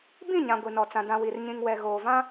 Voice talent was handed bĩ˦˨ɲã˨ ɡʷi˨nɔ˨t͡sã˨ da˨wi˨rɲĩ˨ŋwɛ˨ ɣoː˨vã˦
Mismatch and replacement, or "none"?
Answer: a˨ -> ã˨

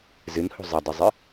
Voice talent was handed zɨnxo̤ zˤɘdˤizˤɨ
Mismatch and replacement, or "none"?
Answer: x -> h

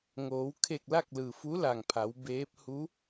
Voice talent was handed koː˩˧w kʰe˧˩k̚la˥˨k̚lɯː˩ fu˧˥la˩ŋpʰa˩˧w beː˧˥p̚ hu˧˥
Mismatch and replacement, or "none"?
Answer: k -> ŋ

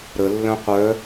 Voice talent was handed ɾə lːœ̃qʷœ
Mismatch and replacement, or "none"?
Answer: none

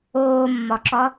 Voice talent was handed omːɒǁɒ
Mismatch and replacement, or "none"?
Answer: o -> oː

